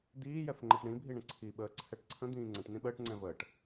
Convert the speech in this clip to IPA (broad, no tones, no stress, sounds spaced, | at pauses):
d̪ iː j ɛ f ŋ͡ǃ ɜ ʈ ɳ ĩ bʱ i ɳ ə̃ ǀʰ i ɓ əː ǀʰ ɛ ʈ ǀʰ ə̃ d̪ ĩː ŋ͡ǀ ə̃ ʈ n ĩ ɓ əː ʈ ŋ͡ǀ ɛ̃ v əː ʈ